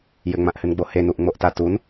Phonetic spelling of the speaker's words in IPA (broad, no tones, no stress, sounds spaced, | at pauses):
j ɘ ŋ͡m ã ʔ h ɨ n ɡ͡b o h e n u ʔ ŋ͡m o ʔ t a t u n